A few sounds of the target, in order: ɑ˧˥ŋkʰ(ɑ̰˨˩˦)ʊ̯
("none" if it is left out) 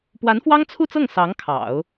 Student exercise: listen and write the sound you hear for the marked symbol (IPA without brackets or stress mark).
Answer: ɑ̰˨˩˦